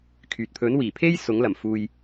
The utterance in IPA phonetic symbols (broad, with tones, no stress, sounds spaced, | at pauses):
kʰ yː˨ t̚ pʰ ɵ˨˥ n w iː˨˩ pʰ e˥ j s ʊ˨˥ ŋ l ɐ˨˩ m f uː˧ j